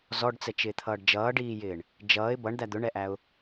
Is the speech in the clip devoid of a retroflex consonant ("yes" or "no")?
no